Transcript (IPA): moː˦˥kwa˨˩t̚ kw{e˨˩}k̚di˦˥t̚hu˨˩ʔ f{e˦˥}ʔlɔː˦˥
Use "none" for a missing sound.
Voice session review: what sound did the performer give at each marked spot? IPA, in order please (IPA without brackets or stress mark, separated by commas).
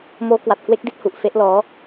e˦˥, e˦˥